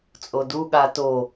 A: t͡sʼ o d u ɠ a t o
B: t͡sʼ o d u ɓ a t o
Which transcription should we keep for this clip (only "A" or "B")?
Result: A